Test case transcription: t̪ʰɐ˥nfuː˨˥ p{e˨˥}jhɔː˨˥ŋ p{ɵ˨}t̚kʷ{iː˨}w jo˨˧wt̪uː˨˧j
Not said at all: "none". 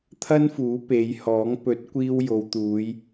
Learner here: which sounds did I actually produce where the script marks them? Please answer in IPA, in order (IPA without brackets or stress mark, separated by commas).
e˨˧, ɵ˨˥, iː˧